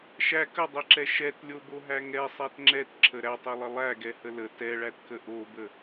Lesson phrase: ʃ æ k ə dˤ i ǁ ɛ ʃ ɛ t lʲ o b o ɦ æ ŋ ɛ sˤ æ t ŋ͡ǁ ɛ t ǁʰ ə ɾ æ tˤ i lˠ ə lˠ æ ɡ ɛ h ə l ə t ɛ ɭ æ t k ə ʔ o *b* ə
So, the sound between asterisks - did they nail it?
yes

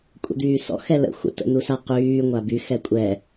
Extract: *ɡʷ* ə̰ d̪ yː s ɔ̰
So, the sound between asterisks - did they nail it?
no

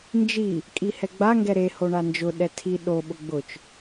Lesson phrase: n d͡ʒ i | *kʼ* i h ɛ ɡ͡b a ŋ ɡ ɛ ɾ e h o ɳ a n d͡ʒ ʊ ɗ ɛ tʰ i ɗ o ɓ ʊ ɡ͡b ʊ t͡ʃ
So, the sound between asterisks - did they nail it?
yes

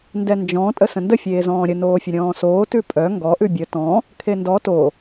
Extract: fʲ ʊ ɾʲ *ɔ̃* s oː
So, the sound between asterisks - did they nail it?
no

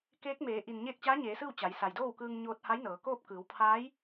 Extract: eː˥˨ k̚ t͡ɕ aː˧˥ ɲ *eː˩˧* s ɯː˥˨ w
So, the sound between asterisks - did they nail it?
yes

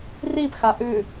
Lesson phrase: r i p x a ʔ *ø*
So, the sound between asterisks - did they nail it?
no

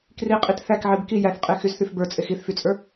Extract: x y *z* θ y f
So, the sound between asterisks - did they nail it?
yes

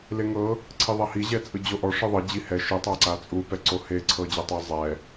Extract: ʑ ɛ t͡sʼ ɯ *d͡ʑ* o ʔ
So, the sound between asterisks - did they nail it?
yes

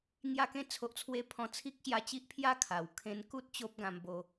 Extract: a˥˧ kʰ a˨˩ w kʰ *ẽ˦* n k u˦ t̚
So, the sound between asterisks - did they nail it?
yes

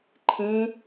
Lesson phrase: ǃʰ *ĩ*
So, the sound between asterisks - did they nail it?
yes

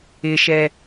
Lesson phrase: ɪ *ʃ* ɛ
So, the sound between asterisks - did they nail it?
yes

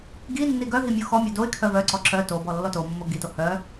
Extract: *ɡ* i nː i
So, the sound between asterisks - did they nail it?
yes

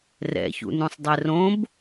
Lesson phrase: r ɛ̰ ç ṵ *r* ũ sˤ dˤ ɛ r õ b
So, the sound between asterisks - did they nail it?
no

